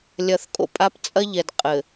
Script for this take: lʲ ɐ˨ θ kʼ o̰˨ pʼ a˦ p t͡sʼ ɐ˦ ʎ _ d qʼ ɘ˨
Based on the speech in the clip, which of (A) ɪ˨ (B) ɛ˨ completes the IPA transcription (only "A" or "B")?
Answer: B